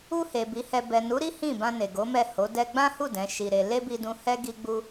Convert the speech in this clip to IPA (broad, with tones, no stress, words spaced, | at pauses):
u˧he˨ bi˨˦hɛ˧ bɛ˨nu˨˦ɾi˦ hĩ˦˨bã˧ ne˨ ɡo˨˦mɛ˦˨ ho˨˦ dɛ˧ɡ͡bã˦hu˦˨ dɛ̃˨˦ʃi˧ɾe˧ le˦bi˧dũ˧hɛ˦ ɡi˧ɡ͡bu˧